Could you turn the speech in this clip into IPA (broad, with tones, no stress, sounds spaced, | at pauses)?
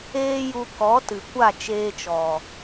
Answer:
eː˧ j u˨ k ɔ˨˦ t ɨ˨ kʷ a˦˨ t͡ʃ eː˧ t͡ʃ ɔ˨